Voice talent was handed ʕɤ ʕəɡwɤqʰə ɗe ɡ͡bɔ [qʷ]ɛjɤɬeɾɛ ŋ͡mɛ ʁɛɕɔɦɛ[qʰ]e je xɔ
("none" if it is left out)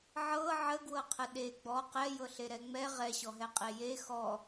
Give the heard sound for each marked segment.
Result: q, qʼ

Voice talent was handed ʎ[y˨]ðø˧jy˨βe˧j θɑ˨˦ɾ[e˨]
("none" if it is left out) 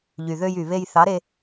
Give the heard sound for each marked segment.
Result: y˨, e˧

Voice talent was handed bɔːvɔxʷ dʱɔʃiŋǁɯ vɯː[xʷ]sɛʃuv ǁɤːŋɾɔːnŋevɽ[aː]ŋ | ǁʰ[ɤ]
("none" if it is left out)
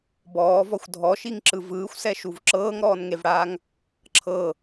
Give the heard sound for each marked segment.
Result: xʷ, aː, ɤ

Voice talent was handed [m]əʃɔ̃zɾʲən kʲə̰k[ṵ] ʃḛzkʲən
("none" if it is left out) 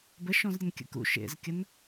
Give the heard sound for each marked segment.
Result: b, ṵ

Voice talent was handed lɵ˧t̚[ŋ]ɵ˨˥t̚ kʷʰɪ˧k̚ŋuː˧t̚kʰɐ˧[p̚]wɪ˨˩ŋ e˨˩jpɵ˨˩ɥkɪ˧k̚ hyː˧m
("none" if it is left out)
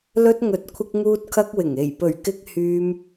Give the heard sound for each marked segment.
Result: ŋ, k̚

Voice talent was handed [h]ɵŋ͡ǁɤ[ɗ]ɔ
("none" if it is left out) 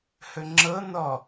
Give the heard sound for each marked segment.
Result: h, n

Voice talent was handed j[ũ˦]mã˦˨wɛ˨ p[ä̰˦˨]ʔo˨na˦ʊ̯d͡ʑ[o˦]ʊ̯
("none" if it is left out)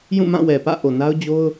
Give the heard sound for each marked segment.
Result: ũ˦˨, ä̰˦˨, o˦

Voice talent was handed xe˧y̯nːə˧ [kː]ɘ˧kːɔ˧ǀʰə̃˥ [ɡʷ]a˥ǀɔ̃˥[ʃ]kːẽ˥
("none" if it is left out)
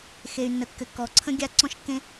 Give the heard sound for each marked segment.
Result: kː, ɡʲ, ʃ

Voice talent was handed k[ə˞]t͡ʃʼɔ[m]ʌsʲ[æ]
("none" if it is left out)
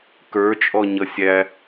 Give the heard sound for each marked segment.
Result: ə˞, ɲ, æ

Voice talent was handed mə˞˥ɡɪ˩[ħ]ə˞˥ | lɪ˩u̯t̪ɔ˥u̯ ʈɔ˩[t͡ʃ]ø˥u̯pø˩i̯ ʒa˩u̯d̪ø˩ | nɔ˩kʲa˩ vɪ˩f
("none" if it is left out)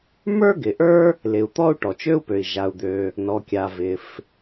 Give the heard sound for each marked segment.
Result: ʔ, t͡ʃ

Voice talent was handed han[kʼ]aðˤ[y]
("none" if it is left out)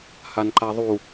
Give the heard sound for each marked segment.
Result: ǃ, u

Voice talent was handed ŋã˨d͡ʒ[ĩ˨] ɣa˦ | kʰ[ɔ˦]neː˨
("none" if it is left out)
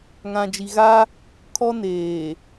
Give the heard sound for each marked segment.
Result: i˨, ɔ˦

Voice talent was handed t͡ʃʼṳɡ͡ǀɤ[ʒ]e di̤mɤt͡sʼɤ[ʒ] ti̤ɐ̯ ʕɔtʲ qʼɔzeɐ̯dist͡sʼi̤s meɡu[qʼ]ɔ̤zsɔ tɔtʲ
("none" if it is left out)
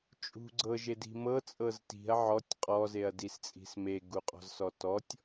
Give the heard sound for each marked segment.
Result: ʒ, z, qʼ

